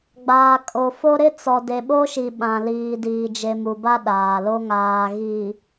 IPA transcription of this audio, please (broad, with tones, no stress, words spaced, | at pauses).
ɡ͡baː˨kʼo˨ fo˦ ɾɪ˦t͡sɔ˨ de˨ɓo˦ʃi˨ ɓã˨liː˨ diː˨d͡ʒe˨mu˨ba˦ ɗaː˨lo˦ ŋaː˨ɣiː˨